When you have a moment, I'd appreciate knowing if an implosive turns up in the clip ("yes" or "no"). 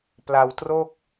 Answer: no